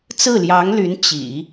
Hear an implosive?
no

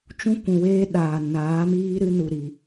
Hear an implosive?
yes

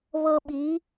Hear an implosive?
yes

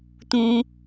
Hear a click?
no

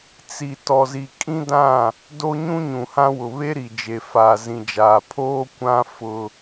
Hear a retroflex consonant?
no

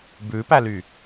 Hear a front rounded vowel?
yes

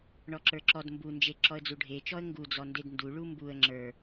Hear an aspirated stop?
no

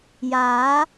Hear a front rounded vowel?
no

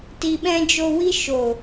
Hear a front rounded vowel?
no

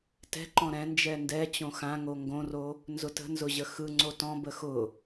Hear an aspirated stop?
no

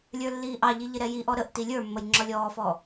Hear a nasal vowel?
no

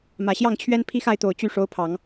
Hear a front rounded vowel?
yes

